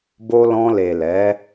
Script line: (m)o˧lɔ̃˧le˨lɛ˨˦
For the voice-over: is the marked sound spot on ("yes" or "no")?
no